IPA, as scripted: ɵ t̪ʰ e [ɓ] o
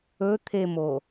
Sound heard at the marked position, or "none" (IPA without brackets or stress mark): m